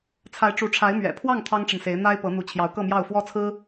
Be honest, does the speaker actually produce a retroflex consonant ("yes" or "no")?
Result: yes